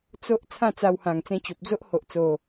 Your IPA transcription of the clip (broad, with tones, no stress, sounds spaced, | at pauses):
t͡s o˦ ʔ t͡sʰ ã˥˧ t͡s a˧ w h ã˨˩ ŋ t͡s ẽ˧ t͡ɕ o˨ p̚ d͡z o˦ ʔ h o˨ ʔ t͡s o˨˩